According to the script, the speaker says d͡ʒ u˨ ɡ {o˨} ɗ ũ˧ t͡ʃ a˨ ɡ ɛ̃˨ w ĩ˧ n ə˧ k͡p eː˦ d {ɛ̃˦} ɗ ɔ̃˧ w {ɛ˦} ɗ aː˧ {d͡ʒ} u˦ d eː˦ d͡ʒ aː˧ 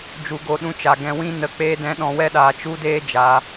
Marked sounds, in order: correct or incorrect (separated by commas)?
correct, correct, correct, incorrect